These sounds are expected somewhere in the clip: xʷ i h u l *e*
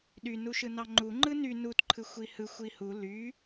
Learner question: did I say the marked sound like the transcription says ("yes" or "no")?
no